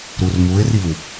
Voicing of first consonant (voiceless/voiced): voiced